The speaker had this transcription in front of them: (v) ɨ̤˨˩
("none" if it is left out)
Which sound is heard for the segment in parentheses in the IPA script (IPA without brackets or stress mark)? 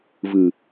v